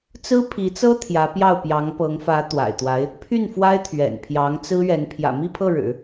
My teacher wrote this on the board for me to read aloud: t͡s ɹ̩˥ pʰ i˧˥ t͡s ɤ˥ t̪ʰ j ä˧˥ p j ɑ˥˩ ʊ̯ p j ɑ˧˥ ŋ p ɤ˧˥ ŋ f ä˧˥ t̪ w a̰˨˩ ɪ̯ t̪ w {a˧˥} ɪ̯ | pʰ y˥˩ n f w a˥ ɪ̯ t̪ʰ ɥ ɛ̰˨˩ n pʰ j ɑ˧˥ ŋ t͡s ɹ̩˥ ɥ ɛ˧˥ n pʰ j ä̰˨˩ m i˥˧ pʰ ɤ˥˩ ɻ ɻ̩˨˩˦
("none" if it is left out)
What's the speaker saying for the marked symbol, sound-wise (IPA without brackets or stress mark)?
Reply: a˧˥